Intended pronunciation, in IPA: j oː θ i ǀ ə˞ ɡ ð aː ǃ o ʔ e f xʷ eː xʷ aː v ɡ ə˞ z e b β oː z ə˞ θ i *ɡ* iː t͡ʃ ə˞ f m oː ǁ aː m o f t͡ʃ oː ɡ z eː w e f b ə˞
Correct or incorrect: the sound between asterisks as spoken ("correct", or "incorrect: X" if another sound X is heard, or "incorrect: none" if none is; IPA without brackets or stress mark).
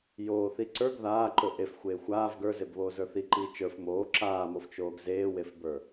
incorrect: ǃ